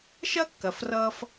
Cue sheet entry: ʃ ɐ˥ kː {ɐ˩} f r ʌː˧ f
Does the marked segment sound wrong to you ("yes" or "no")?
no